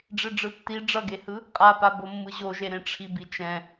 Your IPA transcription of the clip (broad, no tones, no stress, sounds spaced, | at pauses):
ɖ͡ʐ e ɖ͡ʐ ɯ tː i ɖ͡ʐ ʌ ɡ e h ɯ | qʼ a p a b o mː ɯ ʑ o ʒ e ɾ ẽ ʈ͡ʂʰ i b i t͡ʃ ɛ̃